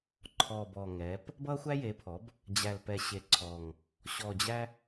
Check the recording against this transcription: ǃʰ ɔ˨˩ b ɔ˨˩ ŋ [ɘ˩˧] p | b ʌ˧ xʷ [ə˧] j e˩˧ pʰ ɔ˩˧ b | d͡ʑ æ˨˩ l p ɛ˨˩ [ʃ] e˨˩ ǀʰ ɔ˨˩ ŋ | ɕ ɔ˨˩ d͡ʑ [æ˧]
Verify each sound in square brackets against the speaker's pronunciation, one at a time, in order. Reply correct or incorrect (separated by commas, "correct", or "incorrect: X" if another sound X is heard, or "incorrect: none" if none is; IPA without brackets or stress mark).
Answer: incorrect: ɛ˩˧, incorrect: æ˧, incorrect: ɕ, correct